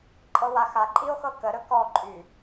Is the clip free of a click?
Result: no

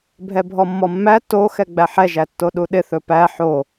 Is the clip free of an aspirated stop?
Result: yes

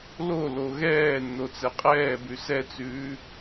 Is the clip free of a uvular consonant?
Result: no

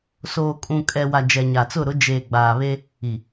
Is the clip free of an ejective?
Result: no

